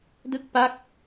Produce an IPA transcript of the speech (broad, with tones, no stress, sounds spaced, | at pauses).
d ɯ˦˥ k̚ p a˦˥ k̚